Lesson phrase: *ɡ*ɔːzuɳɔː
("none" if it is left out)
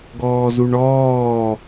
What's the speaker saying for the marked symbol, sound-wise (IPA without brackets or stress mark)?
ɡ